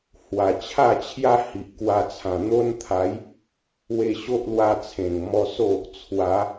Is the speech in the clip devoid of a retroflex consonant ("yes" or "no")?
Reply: yes